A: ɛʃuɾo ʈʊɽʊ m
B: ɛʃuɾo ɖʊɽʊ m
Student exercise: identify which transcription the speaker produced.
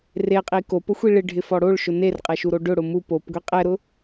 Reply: B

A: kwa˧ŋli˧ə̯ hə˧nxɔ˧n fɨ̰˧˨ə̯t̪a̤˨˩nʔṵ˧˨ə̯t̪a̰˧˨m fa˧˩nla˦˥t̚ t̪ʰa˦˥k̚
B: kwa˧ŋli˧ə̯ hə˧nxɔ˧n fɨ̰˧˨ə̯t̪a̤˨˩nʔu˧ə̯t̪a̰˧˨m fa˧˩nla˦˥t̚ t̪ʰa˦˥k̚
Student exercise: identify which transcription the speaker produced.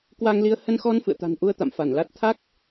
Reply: B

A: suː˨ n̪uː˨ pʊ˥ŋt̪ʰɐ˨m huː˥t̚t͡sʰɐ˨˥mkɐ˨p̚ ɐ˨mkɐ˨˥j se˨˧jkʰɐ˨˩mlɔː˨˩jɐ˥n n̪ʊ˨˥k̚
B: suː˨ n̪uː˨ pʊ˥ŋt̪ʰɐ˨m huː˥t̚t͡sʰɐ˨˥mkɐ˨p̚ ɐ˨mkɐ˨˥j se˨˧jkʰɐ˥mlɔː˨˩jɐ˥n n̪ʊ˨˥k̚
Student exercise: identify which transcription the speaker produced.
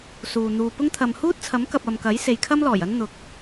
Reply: B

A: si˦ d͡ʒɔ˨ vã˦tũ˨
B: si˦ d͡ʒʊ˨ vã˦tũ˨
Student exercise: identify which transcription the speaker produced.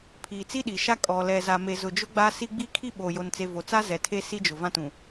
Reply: B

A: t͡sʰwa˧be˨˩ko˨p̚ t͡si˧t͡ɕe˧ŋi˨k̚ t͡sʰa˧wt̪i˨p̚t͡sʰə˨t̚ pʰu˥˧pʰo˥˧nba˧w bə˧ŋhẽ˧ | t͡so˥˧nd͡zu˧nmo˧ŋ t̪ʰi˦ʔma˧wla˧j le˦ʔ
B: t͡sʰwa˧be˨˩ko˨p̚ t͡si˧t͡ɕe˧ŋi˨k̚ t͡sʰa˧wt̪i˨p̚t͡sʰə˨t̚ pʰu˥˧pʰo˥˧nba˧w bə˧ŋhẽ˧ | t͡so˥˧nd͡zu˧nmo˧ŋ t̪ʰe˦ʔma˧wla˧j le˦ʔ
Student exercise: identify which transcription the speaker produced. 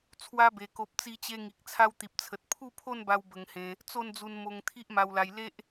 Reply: A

